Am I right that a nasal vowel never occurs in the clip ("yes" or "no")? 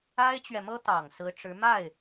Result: yes